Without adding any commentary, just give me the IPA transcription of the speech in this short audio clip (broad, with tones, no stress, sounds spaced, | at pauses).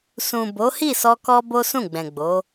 s ũ˨ b o˨˦ h i˦˨ s ɔ˧ k ɔ˦ b o˦ s ũ˦˨ ɡ͡b ɛ̃˨ ɡ͡b o˨˦